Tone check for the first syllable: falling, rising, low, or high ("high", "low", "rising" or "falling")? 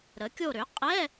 rising